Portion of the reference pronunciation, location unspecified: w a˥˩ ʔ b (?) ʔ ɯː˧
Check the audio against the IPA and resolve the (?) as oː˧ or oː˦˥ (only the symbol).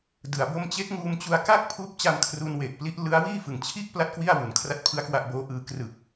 oː˦˥